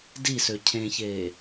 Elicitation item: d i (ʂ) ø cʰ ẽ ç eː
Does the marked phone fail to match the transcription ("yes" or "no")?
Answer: yes